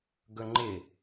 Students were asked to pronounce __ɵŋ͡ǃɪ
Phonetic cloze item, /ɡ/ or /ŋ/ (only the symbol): ɡ